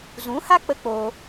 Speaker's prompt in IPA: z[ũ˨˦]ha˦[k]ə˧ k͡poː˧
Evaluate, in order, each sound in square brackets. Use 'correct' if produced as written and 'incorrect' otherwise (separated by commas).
correct, incorrect